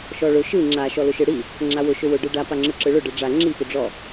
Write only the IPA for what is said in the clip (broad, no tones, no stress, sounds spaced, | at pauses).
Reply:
ʃ ɔ ɭ ʊ ʃ ɯ ŋ͡ǁ a ʃ ɔ l ʊ ʃ ɯ ɽ i | ŋ͡ǁ a w ʊ ʃ ʊ w ʊ ɖ ɯ ɖ a p a ŋ͡ǁ ɯ ǁ ɯ ɭ ʊ ɖ ɯ ɖ͡ʐ a ŋ͡ǁ i p ʊ ɖ͡ʐ ɔ